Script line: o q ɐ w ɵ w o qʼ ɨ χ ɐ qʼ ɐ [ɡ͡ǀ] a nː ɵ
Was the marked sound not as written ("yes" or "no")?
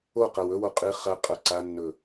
yes